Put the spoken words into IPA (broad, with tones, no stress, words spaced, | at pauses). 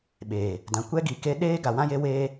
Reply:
ɓeː˨ | dã˨ kʷɛ˦ɡi˨ ke˦ ɗeː˦ ɡa˨wã˦je˦weː˦